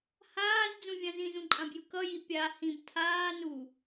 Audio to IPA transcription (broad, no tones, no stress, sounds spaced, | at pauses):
h aː z d͡z ũ vʲ ã z ĩ z ũ ǃʼ ã b j ɯ k ʌ j i pʲ a h ĩ b tʰ aː n u